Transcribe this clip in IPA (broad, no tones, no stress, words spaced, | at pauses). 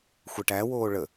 xʷɛʈæwoː ɭə